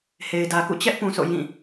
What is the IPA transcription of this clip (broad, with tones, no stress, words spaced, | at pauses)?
he˨ɪ̯dä˨kṵ˦˨ t͡ɕɛ˦ʔpũ˨ sʰo̰˦˨jĩ˦˨